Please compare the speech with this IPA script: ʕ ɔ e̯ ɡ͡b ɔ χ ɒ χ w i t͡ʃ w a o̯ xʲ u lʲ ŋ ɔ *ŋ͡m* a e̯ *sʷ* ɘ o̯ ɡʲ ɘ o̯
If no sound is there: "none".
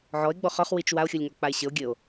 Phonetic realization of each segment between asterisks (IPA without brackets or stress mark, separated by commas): k͡p, ɕ